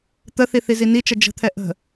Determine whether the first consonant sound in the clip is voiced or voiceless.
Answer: voiceless